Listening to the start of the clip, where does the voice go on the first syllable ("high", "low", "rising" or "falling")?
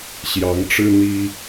rising